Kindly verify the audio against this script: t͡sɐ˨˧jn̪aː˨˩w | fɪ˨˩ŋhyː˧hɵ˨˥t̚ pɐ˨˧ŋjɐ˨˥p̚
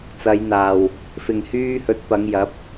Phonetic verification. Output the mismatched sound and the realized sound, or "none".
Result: none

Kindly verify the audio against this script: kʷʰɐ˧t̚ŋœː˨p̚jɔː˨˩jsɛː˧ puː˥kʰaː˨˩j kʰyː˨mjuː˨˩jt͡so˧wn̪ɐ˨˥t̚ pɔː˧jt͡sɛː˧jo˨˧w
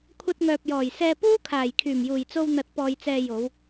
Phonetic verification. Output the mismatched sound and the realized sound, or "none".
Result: yː˨ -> yː˨˩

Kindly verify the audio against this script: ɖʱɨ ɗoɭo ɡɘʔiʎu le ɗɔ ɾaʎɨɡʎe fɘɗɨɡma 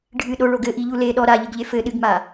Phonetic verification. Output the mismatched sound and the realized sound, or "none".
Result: none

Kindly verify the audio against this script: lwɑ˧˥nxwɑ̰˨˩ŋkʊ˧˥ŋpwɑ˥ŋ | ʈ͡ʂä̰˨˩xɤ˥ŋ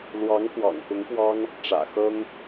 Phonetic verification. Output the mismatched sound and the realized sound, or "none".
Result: n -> ŋ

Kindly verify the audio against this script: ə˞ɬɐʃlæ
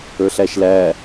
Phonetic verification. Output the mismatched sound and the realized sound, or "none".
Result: ɐ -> æ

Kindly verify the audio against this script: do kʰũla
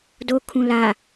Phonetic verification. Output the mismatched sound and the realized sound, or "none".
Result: none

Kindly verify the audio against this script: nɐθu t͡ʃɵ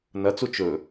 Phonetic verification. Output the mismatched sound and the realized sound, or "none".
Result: θ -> t͡s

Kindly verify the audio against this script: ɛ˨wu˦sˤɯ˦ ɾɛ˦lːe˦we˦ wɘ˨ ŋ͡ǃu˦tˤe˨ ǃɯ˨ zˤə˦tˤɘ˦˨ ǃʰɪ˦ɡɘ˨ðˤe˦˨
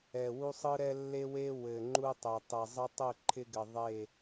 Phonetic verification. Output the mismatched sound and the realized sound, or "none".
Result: ǃ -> tˤ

